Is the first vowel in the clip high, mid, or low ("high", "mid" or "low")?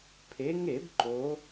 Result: mid